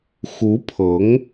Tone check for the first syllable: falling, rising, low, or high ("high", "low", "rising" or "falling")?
rising